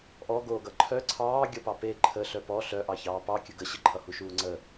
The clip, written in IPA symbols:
ʔ ɔ ɡ oː ɡ ʌ ǃʰ œ ǀʰ ɑː ɡʲ ʌ p ɑ p e ǃʰ ə ɬ œ p ɔ ɬ œ ʔ ɑ ç ɑː p ɑ kʲ ə ɡ ə ɕ ə ǃʰ ʌ h u ʃ uː ŋ͡ǀ ə

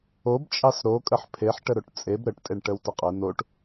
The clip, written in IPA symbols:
o b t͡ʃʼ ɑ s ɾ o kʼ ə ħ pʰ e ħ ʈ ə ɾ o ʈ t͡sʼ e b ɾ ə ʈ tʼ e ɳ ʈ ə w t ə qʼ ə n o ʈ

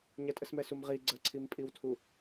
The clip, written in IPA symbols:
ɲ ɐ tʼ ə s m ɛ s u m ʁ i ɡ͡ǀ ə ǀʰ i m pʼ i w tʰ u

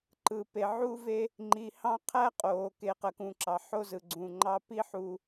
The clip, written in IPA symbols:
ǃ ɯ˨ p e˨ ʕ u˦ v e˦ | ŋ͡ǃ i˨ h ɑ̃˦ qʰ æ˦ qʼ oː˨ k e˨ q ə˨ k ũ˨ ǁ ɑ˨ ħ o˦ z ɯ˨ ɡ͡ǀ ũ˨ ŋ͡ǃ ɑ˦ p i˦ ħ u˦

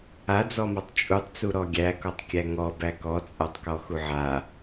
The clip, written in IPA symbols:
a d͡z ɔ m ɒ tˤ t͡ʃʼ u tˤ t͡s u ɾ ɔ ɡʲ æ k ɔ tˤ kʲ æ ŋ ɔ b æ k ɔ t͡sʼ a tˤ k ɔ x u ʕ a

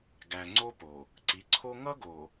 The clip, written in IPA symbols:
ɡ æ˨ ŋ͡ǀ o˦ p o˨ | ǀ i˨˦ ǀʰ o˦ ŋ ʌ˦ ɡ o˨

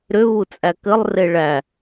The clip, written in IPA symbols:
ɾ ʏ β u t͡sʼ æ k ɘ lˠ r e ɭ æ

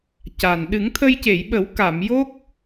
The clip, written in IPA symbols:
c a˨˩ n ɗ ɨ˨˩˦ ŋ t̪ʰ ə˧ j c e˨˩˨ j ɓ ə˨˩˦ w k a˨˩˨ m j o˦˥ k̚

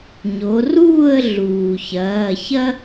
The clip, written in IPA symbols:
ɲ o˩˧ r uː˥˨ ə̯ ɮ uː˩ ç ɐː˩˧˩ ç ɐ˥

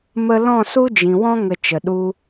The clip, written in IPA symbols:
m ə˦ l ɔ̃˦˨ s u˦ d͡ʒ ĩ˨ w ɔ̃˦ ŋ ə˧ t͡ʃ ə˨ ɗ u˧

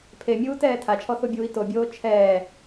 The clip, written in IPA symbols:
pʰ e mʲ uː t ɛː tʰ a t͡ʃʰ ɔ θ o bʲ uː i̯ t o bʲ oː t͡ʃʰ ɛː

